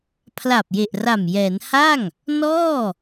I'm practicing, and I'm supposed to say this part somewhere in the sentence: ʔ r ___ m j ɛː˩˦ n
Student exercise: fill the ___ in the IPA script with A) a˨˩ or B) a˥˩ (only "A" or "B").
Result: A